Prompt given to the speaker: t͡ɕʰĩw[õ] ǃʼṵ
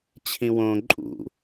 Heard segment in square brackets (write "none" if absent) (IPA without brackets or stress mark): õ